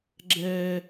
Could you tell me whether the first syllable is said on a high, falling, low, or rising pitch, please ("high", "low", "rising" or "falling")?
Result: high